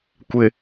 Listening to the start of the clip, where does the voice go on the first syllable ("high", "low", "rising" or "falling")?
low